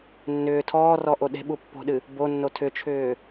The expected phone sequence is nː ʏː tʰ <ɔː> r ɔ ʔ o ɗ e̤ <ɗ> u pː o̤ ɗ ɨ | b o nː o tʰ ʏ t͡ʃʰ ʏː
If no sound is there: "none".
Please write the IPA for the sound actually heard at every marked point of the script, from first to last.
ɔː, ɓ

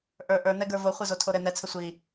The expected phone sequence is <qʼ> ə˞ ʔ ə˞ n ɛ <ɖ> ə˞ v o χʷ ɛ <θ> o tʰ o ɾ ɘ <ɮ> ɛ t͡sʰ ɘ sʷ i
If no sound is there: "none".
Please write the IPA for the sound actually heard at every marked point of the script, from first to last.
ʔ, ɡ, z, n

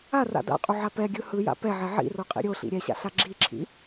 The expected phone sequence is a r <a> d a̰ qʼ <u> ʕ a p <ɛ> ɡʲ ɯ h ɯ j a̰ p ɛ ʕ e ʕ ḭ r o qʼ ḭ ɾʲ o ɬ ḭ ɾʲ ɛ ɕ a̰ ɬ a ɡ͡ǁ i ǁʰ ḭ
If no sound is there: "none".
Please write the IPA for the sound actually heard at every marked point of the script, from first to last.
a̰, u, ɛ

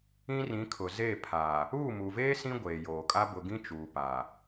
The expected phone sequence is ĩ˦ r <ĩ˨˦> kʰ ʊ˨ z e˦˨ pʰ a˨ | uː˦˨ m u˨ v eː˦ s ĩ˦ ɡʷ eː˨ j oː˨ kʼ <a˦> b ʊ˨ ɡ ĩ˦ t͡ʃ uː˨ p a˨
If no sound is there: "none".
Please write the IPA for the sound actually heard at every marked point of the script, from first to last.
ĩ˨˦, a˦

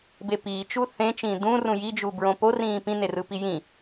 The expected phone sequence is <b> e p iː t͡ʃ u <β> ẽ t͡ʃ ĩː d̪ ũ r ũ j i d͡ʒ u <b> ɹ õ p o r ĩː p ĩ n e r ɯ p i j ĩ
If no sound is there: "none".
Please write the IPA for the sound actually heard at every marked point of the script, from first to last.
b, θ, b

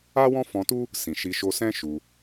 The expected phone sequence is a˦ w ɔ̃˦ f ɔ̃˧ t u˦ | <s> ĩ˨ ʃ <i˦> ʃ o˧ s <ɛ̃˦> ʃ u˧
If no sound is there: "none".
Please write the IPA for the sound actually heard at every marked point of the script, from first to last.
s, i˧, ɛ̃˦

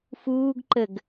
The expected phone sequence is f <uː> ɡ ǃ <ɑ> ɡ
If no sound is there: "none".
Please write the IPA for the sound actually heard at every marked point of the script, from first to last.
uː, ə

